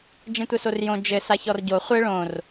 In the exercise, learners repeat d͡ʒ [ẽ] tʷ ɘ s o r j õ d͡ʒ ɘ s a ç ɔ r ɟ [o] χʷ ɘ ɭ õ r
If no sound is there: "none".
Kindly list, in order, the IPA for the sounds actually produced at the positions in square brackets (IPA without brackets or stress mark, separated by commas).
ẽ, o